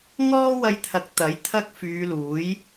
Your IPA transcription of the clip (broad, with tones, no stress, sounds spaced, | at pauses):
ŋ ɔː˥ w ɐ˧ j t̪ʰ ɐ˨˥ k̚ t̪ ɐ˨˥ j t̪ʰ ɐ˥ k̚ f yː˨˧ l uː˨˥ j